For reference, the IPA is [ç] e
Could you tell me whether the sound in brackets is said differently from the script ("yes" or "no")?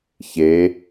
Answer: no